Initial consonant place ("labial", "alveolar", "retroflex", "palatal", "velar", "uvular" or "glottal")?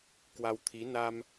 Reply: velar